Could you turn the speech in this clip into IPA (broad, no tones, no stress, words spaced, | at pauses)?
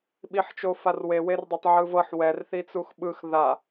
ɓiħt͡ʃofarwe werdˤetˤʕɯvɤħ wɛr θit͡suxɓɯx ða